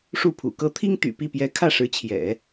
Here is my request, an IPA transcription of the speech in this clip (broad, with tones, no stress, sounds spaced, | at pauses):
ʂ u˥˩ pʰ ṵ˨˩ k ɤ˥ t̪ʰ i˥ ŋ t̪ y̰˨˩ p i˥˩ p j ɛ˧˥ kʰ ä˥˩ ʂ ɻ̩˧˥ t͡ɕʰ j ɛ̰˨˩˦